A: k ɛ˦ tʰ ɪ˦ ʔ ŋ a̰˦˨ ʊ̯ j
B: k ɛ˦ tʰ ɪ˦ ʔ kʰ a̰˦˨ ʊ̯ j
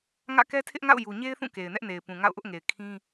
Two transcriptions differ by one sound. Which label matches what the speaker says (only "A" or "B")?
A